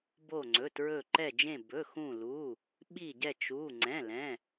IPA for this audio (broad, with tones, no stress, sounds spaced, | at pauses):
b o˧˩ ŋ͡ǀ ɵ˩˧˩ t ɹ ɵ˧˩ ǃ ɛ˧˩ d͡ʒ ẽ˧˩ b ɵ˩˧˩ x ũ˧˩ l u˩˧˩ | ɓ i˧˩ ɟ ɛ˧˩ t͡ʃ u˩˧˩ ŋ͡ǀ ɛ̃˩˧˩ l ɛ̃˩˧˩